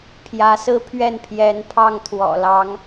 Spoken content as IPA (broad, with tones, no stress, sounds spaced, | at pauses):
pʰ j ä˧˥ s ɹ̩˥ pʰ ɥ ɛ˥˩ n pʰ j ɛ˧˥ n pʰ ɑ˥˩ ŋ t̪ʰ w ɔ̰˨˩ l ɑ˧˥ ŋ